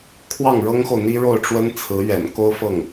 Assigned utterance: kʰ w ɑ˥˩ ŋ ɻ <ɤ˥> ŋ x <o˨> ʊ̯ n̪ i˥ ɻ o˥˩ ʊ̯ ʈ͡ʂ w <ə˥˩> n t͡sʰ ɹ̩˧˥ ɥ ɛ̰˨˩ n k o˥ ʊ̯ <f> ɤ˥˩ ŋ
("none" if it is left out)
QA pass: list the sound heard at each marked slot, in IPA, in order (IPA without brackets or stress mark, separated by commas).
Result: ɤ˥, o˨, ə˥, f